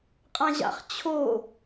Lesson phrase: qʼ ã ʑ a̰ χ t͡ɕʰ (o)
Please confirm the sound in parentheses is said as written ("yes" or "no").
yes